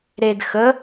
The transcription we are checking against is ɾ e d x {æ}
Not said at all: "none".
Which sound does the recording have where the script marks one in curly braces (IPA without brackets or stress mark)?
ə